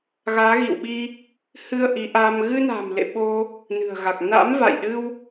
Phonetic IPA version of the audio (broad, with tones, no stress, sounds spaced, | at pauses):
ɣ aː˨˦ ɣ ḭ˧˨ w ɓ i˧ | h ɨ˧ ə̯ ʔ i˨˦ ʔ aː˧ m ɣ ɨ˧ n a̤ː˨˩ m l ḛ˧˨ ɓ o˧ | n ɨ̤˨˩ ə̯ ɣ a˨˩ k̚ n a̰˧˥ m v a̰˧˨ j ɗ ɨ˧ w